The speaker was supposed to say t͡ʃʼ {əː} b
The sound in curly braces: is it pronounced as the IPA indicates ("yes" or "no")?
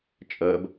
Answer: yes